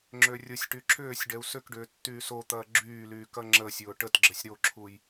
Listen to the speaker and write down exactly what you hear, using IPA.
ŋ͡ǁørʲʊsʲʈy ǁʏːsʲ ɖɛu̯sʏkɖʏː tːyːsot̪ɐː ɡ͡ǁyːlyː kɐŋ͡ǁəsʲʊː ʈətɡ͡ǁəsʲ ɾoǁʰuj

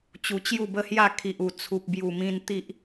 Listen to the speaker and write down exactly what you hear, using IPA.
t͡ɕu˧t͡ɕju˥˧bə˦hja˥˧ kʰi˨ʔu˨˩ t͡sʰu˨p̚bju˨˩mĩ˧n t̪i˦ʔ

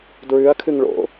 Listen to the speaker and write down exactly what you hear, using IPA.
dɹʉɐ̯kʰɨŋ ɭo̰

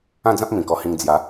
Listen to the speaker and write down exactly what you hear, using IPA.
ã˥˧d͡zã˦p̚ mĩ˨˩kɔ˧hĩ˧ŋ d͡zja˨˦

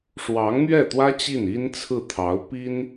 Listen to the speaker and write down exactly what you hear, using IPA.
ʂwɑ˧˥ŋn̪ɥɛ˥˩t̪wä˥ t͡ɕi˥˩ni˥nt͡sʰɹ̩˥˩t̪ʰɑ˧˥ʊ̯ pi˥n

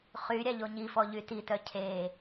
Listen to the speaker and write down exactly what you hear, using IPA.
χy ɾʲaʎoɲifɔ ʎytitœ cʰe

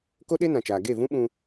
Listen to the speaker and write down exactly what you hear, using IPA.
ko˦ɗe˦nã˨t͡ʃaː˨ ɡe˦˨vũ˦ɓũ˧

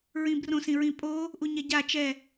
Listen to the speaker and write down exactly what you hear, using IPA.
ɹĩbrõsĩɹĩ pʼo | ʔuɲɛɟa t͡ʃɛ

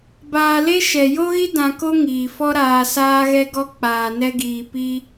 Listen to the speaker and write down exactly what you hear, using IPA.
baː˧le˦ ʃɛ˨ jo˦ɣi˦ dã˧ko˦ ŋiː˨fɔ˦ ɾaː˧saː˦ɣɛ˦ɡɔ˦ k͡paː˨nɛ˧ɡiː˨ pi˧

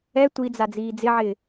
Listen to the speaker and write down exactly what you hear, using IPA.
ɛ tʷid͡za d͡ziːd͡zɪʕɪː

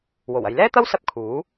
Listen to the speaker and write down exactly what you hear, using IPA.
wo˨˩wɐ˨jlɛː˥t̪ɐ˥w sɐ˥p̚kʰuː˨˥

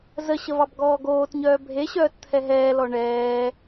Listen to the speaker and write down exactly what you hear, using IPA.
zəɕəvɑbɡɔː ɡoːtɲœː bʱeɕœːtt̪ʰɛ ɦɛːlɔ ɳɛː

